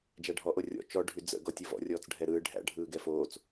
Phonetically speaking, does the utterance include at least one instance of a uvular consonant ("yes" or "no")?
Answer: no